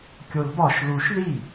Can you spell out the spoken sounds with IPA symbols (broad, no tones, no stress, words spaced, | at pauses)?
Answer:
kʲolbɒʃ luʃ ði